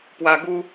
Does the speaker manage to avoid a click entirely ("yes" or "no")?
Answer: yes